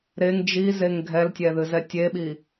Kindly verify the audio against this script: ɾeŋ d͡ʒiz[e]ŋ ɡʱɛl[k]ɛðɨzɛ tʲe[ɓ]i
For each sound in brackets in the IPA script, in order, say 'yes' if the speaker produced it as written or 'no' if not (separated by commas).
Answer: yes, no, yes